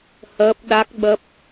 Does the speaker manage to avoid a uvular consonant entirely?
yes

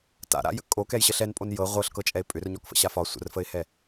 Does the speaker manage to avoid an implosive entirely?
yes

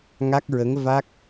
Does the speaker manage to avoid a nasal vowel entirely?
yes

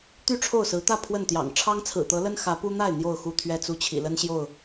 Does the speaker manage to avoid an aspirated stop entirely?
no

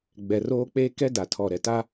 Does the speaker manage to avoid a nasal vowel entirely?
yes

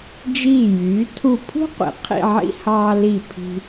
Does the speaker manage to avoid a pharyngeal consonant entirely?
no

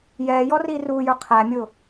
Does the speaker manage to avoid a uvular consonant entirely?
no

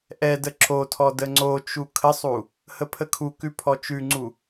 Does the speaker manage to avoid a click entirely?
no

